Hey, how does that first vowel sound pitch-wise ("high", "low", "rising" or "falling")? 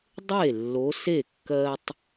falling